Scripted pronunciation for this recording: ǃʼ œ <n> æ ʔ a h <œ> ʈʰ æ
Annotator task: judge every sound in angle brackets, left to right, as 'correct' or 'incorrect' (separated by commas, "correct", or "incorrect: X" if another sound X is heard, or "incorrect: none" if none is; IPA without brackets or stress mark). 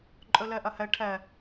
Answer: incorrect: l, incorrect: æ